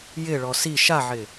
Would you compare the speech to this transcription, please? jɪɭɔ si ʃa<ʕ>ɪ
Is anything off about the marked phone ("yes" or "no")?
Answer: no